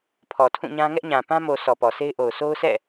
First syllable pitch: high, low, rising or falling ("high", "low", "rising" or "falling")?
low